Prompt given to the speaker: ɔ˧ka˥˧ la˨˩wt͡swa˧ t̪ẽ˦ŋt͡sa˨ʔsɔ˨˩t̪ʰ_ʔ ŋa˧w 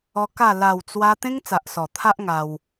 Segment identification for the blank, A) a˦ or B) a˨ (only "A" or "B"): A